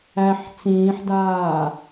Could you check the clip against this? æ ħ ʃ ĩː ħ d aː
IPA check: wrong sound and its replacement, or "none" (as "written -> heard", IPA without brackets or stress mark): ʃ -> t͡s